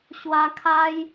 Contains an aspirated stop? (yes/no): yes